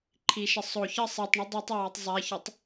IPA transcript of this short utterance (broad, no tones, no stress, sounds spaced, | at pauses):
ǃʰ i ʃ ə sˤ o ç ə sˤ i tˤ ɳ ə dˤ i tˤ a w a tˤ zˤ a ç ə tˤ